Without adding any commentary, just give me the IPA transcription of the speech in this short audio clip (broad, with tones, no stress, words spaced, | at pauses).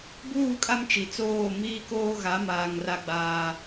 buː˦˨kʼa˦m t͡ʃi˨t͡soː˦˨ miː˦koː˦ɣa˨˦maː˨ŋ ra˦ɡ͡baː˦